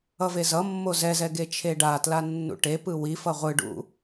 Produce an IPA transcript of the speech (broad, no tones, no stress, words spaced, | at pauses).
ʌvezʌmːo zɛzɛ ɡet͡ʃʰeɖatla nːṵʈepɯ wi fʌʁʷɯɖṵ